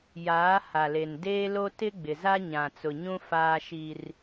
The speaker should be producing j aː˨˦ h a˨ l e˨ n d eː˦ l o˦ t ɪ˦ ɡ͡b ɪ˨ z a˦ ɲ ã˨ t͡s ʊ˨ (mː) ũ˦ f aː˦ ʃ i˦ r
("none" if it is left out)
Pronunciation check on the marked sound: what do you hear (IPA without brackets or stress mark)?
ɲ